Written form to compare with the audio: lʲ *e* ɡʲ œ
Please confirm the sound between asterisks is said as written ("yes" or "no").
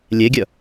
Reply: yes